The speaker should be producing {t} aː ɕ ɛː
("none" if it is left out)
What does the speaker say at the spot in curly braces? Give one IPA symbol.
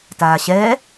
t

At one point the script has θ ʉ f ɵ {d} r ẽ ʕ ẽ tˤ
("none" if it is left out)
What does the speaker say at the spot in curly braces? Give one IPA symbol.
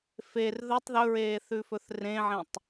θ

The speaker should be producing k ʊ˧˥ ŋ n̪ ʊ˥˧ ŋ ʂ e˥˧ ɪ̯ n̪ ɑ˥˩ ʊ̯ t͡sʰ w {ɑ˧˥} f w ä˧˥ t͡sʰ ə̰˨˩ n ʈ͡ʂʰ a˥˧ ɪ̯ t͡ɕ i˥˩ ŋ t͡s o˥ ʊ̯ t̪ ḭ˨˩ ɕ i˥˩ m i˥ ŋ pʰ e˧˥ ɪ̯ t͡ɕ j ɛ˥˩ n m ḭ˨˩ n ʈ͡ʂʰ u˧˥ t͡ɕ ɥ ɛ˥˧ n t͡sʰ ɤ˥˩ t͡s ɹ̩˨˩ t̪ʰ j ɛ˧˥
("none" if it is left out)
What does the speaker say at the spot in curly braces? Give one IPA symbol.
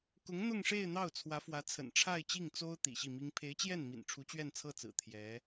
ä˧˥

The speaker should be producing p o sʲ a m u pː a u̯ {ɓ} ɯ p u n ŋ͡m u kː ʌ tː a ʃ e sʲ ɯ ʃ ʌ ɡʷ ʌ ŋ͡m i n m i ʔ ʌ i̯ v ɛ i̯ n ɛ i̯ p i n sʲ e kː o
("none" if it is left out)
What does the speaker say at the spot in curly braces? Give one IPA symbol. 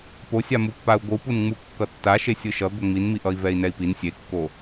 ɡʷ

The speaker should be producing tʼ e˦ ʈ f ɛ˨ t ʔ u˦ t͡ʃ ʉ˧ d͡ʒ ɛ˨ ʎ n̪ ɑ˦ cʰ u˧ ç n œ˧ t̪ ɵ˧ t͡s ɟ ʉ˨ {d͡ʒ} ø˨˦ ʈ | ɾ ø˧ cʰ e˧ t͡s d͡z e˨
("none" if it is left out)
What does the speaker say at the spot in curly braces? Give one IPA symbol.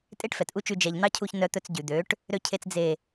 d̪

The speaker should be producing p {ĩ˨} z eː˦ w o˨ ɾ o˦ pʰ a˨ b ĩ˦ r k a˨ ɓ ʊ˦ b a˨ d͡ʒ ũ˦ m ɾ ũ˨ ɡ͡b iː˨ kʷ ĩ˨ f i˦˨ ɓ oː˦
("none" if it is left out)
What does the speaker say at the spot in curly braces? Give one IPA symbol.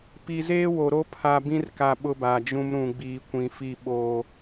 i˨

